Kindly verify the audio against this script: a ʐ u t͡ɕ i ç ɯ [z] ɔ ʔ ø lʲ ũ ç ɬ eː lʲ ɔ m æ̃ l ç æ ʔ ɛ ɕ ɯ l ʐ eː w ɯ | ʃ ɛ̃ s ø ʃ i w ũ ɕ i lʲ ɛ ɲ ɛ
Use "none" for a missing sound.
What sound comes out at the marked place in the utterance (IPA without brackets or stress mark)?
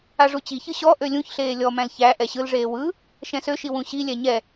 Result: ɕ